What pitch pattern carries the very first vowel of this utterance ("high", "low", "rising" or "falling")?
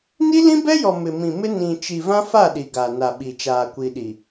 high